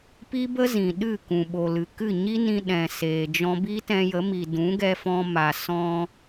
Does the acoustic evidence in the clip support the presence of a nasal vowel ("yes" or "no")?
yes